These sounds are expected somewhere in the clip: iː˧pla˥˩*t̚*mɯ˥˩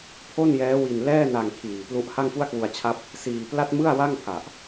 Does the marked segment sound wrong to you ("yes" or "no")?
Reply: no